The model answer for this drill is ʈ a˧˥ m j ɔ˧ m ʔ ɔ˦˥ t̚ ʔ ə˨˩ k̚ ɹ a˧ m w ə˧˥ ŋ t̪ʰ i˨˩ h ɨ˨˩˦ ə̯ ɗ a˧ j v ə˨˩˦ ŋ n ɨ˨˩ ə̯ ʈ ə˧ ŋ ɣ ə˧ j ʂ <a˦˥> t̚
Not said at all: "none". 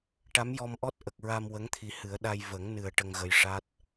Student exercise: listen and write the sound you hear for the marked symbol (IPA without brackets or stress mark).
a˦˥